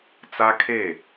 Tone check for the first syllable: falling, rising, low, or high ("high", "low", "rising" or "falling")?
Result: high